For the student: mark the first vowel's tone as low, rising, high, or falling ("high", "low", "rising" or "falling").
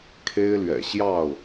high